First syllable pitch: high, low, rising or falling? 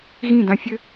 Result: falling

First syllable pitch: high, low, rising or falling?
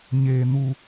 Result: low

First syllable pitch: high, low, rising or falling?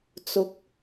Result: rising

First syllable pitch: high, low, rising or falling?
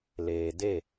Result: low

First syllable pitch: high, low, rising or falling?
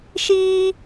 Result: high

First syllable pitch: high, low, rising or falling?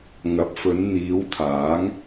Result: rising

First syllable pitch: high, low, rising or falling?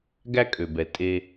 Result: high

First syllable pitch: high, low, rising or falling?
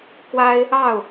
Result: high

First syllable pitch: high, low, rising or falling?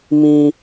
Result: high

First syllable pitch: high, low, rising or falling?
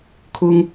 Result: high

